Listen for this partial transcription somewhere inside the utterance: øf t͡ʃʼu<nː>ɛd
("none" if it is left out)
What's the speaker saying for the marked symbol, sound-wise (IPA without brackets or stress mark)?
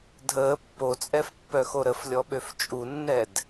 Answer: nː